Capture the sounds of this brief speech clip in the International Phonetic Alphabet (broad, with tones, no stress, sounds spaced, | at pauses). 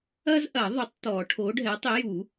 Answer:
ɐ˥ z ʔ ɐ˨˩˦ ðˤ ʏ˨˥ tˤ t̪ ɔ˨˩˦ ʈʰ o˨˥ ɖʱ ɛ˨˥ tˤ ɪ˨˥ j u˨˩˦